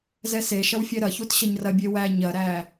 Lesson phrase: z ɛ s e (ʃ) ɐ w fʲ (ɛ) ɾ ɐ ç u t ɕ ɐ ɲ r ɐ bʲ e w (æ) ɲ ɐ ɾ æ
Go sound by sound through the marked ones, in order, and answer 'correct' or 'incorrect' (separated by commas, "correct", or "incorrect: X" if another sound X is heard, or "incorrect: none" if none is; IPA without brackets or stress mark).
correct, correct, correct